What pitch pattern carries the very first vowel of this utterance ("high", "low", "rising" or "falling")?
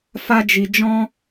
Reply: high